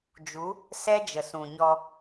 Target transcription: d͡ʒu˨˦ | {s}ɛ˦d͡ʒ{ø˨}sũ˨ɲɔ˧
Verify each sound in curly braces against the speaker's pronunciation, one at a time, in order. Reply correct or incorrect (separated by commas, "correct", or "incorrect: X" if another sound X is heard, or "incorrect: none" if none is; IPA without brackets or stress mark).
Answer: correct, incorrect: ə˨